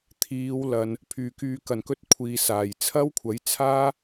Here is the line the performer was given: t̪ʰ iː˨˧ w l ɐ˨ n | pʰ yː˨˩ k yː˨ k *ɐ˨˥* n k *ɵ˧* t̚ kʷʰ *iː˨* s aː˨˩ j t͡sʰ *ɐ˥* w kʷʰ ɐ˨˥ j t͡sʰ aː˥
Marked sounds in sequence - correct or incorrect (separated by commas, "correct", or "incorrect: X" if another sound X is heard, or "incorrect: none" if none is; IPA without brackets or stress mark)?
incorrect: ɐ˨˩, correct, correct, correct